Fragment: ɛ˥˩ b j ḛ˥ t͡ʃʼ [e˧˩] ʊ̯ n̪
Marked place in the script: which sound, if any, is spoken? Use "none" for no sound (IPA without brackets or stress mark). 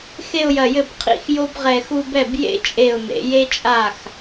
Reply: e˧˩